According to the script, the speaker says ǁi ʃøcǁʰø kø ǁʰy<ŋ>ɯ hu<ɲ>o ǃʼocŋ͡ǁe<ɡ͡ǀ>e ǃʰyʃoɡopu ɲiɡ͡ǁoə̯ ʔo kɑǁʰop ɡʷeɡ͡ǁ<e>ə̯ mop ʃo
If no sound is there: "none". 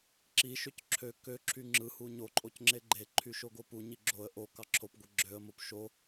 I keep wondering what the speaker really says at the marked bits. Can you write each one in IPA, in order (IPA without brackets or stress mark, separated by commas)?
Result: ŋ͡ǁ, ɲ, ɡ͡ǃ, ø